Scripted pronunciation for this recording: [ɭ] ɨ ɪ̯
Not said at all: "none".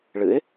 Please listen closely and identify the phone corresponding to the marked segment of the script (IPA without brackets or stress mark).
ɭ